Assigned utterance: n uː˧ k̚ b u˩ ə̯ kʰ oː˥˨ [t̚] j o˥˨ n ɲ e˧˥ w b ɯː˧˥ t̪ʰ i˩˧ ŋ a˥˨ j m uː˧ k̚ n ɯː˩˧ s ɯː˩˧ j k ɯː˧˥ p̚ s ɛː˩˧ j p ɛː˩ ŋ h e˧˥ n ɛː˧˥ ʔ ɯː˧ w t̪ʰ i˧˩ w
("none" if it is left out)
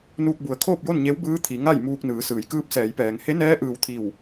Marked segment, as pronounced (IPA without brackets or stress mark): p̚